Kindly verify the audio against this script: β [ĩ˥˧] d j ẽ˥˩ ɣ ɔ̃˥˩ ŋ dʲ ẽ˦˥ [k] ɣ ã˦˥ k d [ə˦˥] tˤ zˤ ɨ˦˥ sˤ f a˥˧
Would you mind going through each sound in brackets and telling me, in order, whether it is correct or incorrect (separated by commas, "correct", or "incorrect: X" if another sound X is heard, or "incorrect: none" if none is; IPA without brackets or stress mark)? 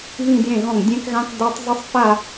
correct, correct, incorrect: a˦˥